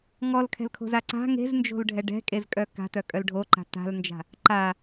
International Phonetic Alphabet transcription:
ŋ ɔ l kʰ ɛ̤ l kʰ o̤ z a ǀ a̤ ŋ e̤ z n d͡ʒ o̤ l ɖʱ ɛ ɖ ɛ̤ kʼ e z kʼ œ k a̤ t œ kʼ œ l ɖʱ o ǃ a̤ t a̤ l n d͡ʒ a̤ | ǃ a

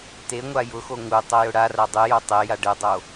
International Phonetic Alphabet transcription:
t e ŋʷ a j ʊ x o ŋ u tˤ o j ʊ ɽ a r a dˤ ɨ j o tˤ e j a ɖ ɨ dˤ o

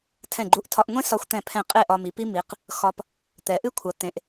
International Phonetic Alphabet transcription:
tʰ ɛ̃˧˩ ɡ͡ǃ u˧ ʔ tʰ ɒ˧ ʔ ŋʷ ẽ˥ s ɒ˧ xʷ t̪ ɛ̃˧˩ pʰ ɛ̃˧˩ qʼ e˥˧ ʔ ɒ˧ m i˩˧ p i˥ m i˩˧ q | x ɒ˧ p | t̪ ɛ˩˧ ʔ ɨ˥ kʷʰ ɐ˩˧ t̪ ẽ˩˧ ʔ

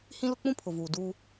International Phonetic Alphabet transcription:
h ĩ˦ l ʊ˦ k͡p ũ˦ pʰ ʊ˨ v uː˨ d uː˦

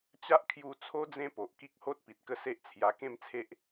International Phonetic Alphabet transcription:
t͡ɕ a˦ ʔ kʰ j u˧ t͡sʰ o˦ d͡z ẽ˦ p o˨ ʔ k i˦ k̚ h o˦ t̚ p i˨ t̚ k ə˥˧ s e˦ ʔ t͡sʰ j a˧ k ẽ˥˧ m t͡sʰ e˦ ʔ

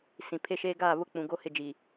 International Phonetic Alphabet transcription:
s ĩ˨ pʰ e˦ ʃ eː˦ ɡ aː˦˨ β ʊ˦ k͡p ũ˨ ɡ o˦ h ɪ˦˨ d͡ʒ i˨

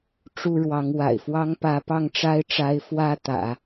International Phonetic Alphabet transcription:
ʈ͡ʂ u˥ ɻ w ɑ˧˥ ŋ w a̰˨˩ ɪ̯ f w ɑ˥ ŋ p ä˧˥ p ɑ˥˩ ŋ ʈ͡ʂ a˥ ɪ̯ ʈ͡ʂ a˧˥ ɪ̯ f w ä˥ t̪ ä̰˨˩˦

